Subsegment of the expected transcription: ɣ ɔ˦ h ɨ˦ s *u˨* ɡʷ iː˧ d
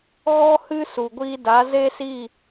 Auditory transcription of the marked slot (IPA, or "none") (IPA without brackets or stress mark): u˨